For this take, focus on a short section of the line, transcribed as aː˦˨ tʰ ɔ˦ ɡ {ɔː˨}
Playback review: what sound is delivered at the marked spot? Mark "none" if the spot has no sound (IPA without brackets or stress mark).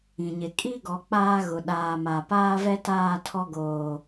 oː˨